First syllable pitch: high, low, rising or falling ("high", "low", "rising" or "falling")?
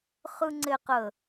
high